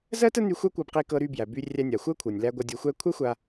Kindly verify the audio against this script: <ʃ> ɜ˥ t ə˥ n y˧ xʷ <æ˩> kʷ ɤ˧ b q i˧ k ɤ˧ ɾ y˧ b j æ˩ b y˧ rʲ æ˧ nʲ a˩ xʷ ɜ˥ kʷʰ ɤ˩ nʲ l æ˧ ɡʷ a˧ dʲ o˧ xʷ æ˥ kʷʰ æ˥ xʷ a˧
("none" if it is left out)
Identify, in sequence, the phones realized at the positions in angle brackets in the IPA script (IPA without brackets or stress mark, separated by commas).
z, æ˥